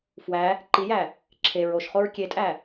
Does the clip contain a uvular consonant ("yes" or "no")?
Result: yes